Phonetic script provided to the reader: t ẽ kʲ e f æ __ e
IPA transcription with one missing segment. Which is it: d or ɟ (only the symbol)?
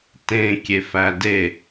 d